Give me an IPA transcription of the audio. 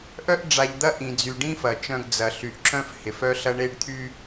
ʔ œ˦ ʔ ɖ͡ʐ a˨ ʎ d̪ ɐ˦ ʔ ĩ˨ d͡z y˨ ɖ ĩ˦ f ɐ˨ t͡ʃ œ̃˦ ɡ d͡z ɐ˨ ɬ y˨ ʔ ǁ œ̃˦ f h ɪ˨ f œ˦ ɬ ɐ˦ ɳ e˦ ɖ t̪ʰ y˦

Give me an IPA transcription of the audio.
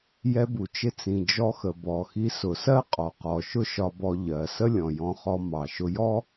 j ɛ˧ b u˩ t͡ʃ ɪ˧ t͡s ĩ˩ d͡ʒ ɔ˧ x ə˩ b ɔ˩ x i˧ s ʊ˩ s ɜ˥ qʼ ɔ˩ q ɔ˩ ʃ ʊ˥ ʃ ɒ˧ b ɔ˧ ʎ ɜ˩ s ə˥ lʲ ɔ̃˩ j ɔ̃˧ χ ɔ˧ m ɑ˩ ʃ ʊ˧ j ɔ˥

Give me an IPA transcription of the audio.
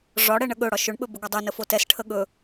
ʐ ɒ ɽ ɛ ɳ ə ɠ ɵ ɽ ɒ ʃ ɵ ɳ ɓ ɵ b ɵ ɡ ɒ dˤ ɵ n ə f o t ɛ s ʈʰ ə ɠ ɵ

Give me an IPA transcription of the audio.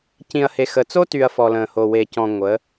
c ĩ˨ ɐ̯ h e˨ x ə˨ t͡s o˦ t y˨ ɐ̯ f ɔ˨ l ə̃ː˨ h o˨ w e˨ c ɔ̃˨ ŋʷ ə˨˦

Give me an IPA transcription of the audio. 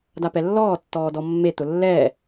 d a p ɛ lː ɔː tː ɔː d ɔ mː e t̪ ʊ lː ɛː

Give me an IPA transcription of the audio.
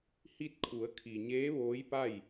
h i˧ t̚ kʰ u˩˧ ə̯ kʰ i˩ ɲ eː˧˥ ʋ oː˧˥ j p a˥˨ j

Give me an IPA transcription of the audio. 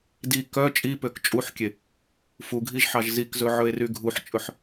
d i k œ t͡ʃʼ i p ø k t͡ʃʼ u ħ kʲ e | f u ɡʱ i ʒ ħ ɑ ʒ z i k z ɵ ʕ ɵ e̯ r y ɡʱ u ħ t͡ʃʼ ɵ ħ

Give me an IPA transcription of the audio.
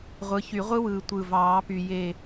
ʁʷ ɯ˩˥ ç y˨˩˦ ʁʷ ɯ˦˥ w ɯː˨˩ tʷ ɯ˨˩ v ɑː˨˩˦ p y˨˩ j e˦˨

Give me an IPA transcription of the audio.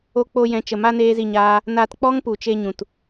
o˦ k͡p o˧ j ɛ̃˨ t͡ʃ ə˨ m a˧ n eː˦ z i˦˨ ɲ aː˦ | n a˧ t k͡p ɔ˦ ŋ p u˨ t͡ʃ e˧ ɲ ũ˨ t

